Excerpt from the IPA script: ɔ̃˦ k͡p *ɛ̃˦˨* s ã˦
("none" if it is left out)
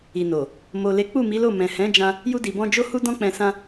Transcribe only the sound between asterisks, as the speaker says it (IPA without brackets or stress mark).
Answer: ɛ̃˧